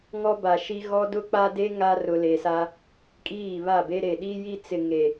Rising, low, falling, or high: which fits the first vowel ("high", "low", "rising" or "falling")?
high